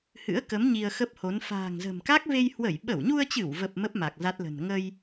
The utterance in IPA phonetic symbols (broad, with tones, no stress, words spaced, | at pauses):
hɨ̰˧˥ə̯kə˨˦m ɲi˧ə̯xə˦˥p̚ho˨˦n fa̤ː˨˩ŋzə̤˨˩mka˦˥k̚ ve˧jhwə˧˩j ɓə˧˩wɲu˧ə̯t͡ɕɨ˧˩wvə˨˩p̚ mə˦˥p̚ma˨˩k̚ za˦˥t̚lə̤˨˩n ŋə˧j